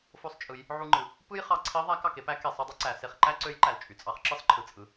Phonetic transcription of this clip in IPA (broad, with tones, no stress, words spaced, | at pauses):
fo˧˥sˤt͡ʃʼɯ˩˧j | ʕu˧ŋ͡ǃɯ˩ | pɯ˥jχɑ˧ ǀʰi˧˥ ðˤæ˧˥k ɑ˩ke˥pæ˧˥ke˩ sˤɯ˧dˤɯ˥ǀæ˩˧ se˩˧χǃæ˥ ǀø˧˥jǃæ˩l t͡ʃʼy˩˧t͡sʼɑ˧χ ǁɯ˥sˤǃʰɯ˩t͡sʼɯ˩˧